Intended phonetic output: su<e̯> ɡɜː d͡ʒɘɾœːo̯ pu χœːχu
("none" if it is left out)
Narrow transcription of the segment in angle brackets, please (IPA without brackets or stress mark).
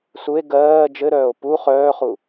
e̯